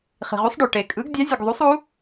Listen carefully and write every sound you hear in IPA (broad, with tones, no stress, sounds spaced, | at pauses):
χ i̤˩ ʁ u˩˥ sˤ ɖ ø˩ ʈ e˩ kʼ ɯ˩˥ ɡ dʲ ɑ˩˥ zʲ ɯ˩ ɡ ðˤ u˩˥ sˤ u˩˥